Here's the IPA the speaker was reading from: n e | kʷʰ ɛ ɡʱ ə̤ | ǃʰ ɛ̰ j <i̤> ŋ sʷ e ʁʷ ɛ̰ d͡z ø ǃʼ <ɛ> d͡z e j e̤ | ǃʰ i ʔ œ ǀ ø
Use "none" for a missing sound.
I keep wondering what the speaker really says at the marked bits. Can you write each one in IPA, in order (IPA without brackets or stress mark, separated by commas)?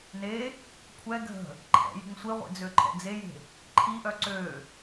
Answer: i̤, ɛ̰